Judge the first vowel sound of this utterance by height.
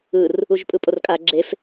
high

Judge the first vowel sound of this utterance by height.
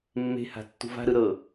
mid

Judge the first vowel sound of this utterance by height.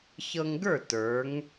mid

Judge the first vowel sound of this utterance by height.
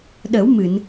mid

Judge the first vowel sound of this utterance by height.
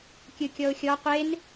high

